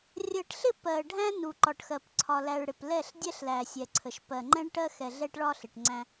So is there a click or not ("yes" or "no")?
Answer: yes